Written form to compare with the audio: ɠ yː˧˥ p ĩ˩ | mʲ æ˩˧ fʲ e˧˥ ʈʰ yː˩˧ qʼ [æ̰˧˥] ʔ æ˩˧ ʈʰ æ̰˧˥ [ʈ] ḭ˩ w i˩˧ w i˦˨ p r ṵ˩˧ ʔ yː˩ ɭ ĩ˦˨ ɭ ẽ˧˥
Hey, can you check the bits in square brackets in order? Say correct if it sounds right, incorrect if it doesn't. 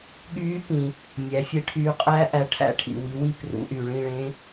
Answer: incorrect, incorrect

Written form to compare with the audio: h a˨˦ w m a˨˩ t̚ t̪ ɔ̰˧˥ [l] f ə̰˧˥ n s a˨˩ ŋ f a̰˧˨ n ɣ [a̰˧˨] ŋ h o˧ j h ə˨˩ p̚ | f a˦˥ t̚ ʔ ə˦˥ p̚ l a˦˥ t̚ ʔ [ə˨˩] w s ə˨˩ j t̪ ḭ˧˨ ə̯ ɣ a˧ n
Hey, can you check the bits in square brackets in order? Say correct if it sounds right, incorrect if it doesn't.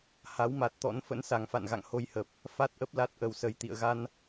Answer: incorrect, correct, correct

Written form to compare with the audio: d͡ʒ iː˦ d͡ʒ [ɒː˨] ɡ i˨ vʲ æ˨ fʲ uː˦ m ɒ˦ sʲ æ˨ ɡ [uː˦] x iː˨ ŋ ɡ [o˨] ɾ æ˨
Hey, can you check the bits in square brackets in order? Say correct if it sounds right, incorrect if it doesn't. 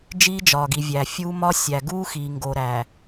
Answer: correct, correct, correct

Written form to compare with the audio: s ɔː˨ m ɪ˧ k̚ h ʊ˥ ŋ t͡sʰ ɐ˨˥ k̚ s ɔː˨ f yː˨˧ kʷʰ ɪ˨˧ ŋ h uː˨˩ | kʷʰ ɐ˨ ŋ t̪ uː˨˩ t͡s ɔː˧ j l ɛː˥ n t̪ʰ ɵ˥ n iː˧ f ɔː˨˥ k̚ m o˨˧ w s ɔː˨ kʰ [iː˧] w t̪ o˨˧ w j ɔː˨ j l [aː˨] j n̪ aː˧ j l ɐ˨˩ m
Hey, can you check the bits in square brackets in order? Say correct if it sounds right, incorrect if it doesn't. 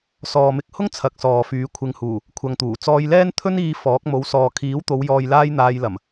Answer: incorrect, incorrect

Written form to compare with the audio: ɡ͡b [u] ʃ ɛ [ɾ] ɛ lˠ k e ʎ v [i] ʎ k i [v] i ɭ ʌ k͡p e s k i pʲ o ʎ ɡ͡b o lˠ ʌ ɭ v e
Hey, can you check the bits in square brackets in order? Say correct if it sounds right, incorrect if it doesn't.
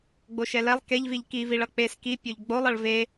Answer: incorrect, incorrect, correct, correct

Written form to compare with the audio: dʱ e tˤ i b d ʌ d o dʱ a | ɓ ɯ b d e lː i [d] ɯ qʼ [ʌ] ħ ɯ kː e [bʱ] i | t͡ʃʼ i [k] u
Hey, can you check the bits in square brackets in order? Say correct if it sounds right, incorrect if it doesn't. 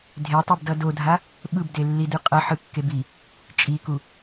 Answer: correct, correct, incorrect, correct

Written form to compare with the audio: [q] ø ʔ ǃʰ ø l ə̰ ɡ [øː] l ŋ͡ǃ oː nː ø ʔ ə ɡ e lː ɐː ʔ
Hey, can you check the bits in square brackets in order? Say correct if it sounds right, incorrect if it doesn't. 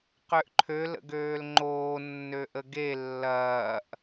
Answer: correct, correct

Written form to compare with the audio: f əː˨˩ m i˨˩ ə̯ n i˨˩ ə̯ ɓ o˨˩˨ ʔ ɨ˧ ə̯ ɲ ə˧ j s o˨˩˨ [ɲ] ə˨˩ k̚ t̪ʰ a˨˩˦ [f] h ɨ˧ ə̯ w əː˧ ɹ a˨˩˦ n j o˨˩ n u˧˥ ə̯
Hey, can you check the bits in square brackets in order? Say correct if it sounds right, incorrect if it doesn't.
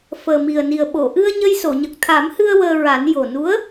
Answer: correct, incorrect

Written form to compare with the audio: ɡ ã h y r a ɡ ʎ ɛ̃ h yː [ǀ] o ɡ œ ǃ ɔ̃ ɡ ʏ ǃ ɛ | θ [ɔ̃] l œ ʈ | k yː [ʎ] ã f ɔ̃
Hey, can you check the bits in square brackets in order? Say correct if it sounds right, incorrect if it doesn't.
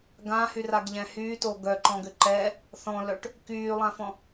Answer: incorrect, correct, incorrect

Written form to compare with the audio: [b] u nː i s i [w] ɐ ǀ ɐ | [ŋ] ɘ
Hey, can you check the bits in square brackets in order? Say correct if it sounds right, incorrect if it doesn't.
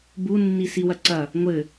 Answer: correct, correct, incorrect

